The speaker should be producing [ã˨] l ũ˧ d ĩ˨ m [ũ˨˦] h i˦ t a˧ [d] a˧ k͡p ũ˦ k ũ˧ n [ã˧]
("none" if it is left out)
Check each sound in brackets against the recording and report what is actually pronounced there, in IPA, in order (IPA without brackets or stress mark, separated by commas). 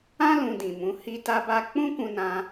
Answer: ã˦, ũ˨˦, b, ã˧